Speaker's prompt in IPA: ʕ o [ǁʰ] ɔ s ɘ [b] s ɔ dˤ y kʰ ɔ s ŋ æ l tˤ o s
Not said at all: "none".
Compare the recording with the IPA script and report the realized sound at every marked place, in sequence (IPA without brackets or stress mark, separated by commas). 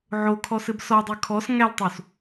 kʰ, b